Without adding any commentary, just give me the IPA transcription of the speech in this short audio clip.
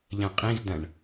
ʎ ɐ̃ qʼ ĩ z d ɐ̃ ɳ

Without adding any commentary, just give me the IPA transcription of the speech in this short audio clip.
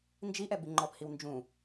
n d͡ʒ i ʔ ɛ b i ŋ͡ǃ ɔ p h i w n d͡ʒ ũ

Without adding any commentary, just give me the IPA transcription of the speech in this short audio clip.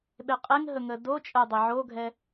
ɓ e qʼ e ŋ ɦ ə ŋ ə d o t͡ʃʼ ə dˤ ɛ ʕ o ɡʱ ɛ

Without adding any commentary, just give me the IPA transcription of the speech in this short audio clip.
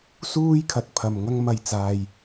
s uː˥ j kʰ ɐ˨ t̚ pʰ ɐ˨ m ŋ ɐ˥ ŋ m ɐ˨ j t͡s aː˨ j

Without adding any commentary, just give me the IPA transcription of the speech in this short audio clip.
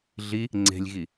ɮ i | ŋ͡ǀ e̤ lʲ ɣ i

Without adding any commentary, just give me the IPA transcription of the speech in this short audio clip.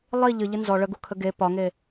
lˠ i ʎ ɨ ʎ ɨ n z ɔ ɭ ə ɡ u kʰ ə ɡ e p ɒ ŋ e

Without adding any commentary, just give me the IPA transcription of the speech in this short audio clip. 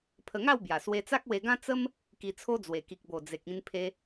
pʰ ə˧ ŋ a˥˧ w b j a˨˩ s w e˧ t͡s a˦ k̚ w e˧ ɡ ã˦ t͡s ə˦ m | k i˧ t͡sʰ o˦ d͡z w e˨˩ k i˨ k̚ b o˨˩ d͡z e˨ k̚ ĩ˧ n pʰ e˧

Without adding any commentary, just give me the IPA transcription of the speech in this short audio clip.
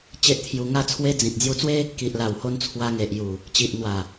t͡ɕ e˦ ʔ t̪ʰ j u˧ ŋ a˥˧ t͡sʰ w e˦ d͡z ĩ˨ t̚ d͡z j u˧ t͡s w e˦ | k i˨ ʔ l a˨˩ w h o˧ n t͡sʰ w a˧ ŋ e˨ ʔ j u˨˩ | t͡ɕ i˨ ʔ n̪ w a˨˩

